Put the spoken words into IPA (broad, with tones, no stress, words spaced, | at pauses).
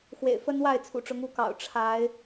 xwḛ˨˩ɪ̯ fə˦nwa˥˨ɪ̯ t͡sʰṵ˨˩ʈ͡ʂʊ˨˦ŋ u˨˦kɑ̰˨˩ʊ̯ ʈ͡ʂʰa˨˦ɪ̯